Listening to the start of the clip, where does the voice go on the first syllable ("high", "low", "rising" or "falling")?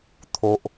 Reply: high